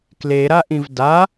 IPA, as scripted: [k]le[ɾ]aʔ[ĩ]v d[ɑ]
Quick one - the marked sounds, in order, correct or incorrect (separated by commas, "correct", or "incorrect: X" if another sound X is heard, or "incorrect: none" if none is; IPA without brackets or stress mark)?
correct, correct, correct, incorrect: a